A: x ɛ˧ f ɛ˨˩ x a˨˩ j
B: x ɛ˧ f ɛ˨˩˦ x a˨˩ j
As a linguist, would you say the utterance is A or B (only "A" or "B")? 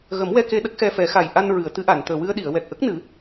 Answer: B